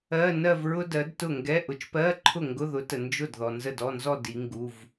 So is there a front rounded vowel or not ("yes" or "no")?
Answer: no